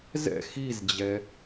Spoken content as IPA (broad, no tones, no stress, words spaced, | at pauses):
zɛ̰ xizd͡ʑɛ